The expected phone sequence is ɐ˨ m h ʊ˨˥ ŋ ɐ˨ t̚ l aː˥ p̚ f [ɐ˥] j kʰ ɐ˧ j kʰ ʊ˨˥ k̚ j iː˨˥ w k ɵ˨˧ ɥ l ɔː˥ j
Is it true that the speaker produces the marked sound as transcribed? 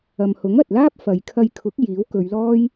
no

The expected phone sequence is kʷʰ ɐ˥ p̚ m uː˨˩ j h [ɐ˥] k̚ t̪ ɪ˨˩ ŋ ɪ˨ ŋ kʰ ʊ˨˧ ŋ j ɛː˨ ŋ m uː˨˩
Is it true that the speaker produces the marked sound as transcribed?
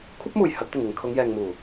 no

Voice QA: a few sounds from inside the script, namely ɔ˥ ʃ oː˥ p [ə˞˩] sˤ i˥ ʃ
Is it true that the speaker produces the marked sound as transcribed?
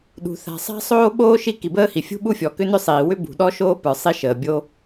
yes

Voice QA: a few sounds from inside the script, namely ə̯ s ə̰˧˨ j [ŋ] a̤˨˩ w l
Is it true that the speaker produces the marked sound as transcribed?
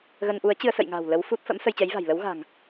yes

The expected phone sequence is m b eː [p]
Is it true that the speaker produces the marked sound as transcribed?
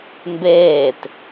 no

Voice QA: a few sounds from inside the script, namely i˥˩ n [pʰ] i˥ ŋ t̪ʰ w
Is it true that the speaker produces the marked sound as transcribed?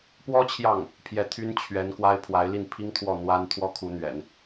yes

